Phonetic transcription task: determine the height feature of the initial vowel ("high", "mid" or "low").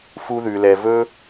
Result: high